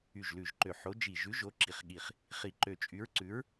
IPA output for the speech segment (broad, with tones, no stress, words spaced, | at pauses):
y˧˩ʒlʉ˧˩ʒǃø˧˩ ħo˨˥ d͡ʒi˧˩ ʒʉ˨˥ʒo˨˥ ǁi˧˩χɠi˧˩χ | χi˧˩ǃø˧˩ t͡ʃʼy˨˥ɹǀʉ˨˥ɹ